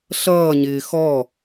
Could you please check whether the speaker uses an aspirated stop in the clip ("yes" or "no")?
no